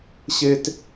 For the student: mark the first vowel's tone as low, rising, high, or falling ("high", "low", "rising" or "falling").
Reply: high